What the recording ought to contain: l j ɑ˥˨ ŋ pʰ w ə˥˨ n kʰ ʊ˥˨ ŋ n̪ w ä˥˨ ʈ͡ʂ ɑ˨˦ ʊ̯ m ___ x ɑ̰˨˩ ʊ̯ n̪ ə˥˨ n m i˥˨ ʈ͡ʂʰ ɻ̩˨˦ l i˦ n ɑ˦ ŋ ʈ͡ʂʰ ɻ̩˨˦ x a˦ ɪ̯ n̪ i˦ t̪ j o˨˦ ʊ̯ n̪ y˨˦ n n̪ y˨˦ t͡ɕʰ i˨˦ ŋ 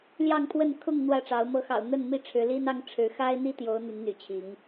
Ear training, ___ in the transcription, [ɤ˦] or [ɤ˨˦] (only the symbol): ɤ˨˦